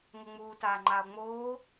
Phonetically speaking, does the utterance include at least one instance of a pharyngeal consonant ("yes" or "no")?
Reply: no